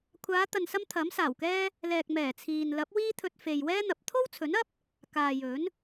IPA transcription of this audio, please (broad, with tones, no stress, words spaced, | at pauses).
kʷʰaː˨˧t̪ɐ˨nsɐ˧m t̪ʰɐ˨˥msaː˨˩wkɛː˥ | lɛː˨k̚mɛː˨˩ t͡sʰiː˨n lɐ˨˥p̚ wiː˥t̪ʰɵ˧t̚ fe˨jwɛː˥n̪ɐ˨˥p̚ t̪ʰo˥wt͡sʰɵ˨˥nɐ˥p̚ | kaː˨jɵ˨˥n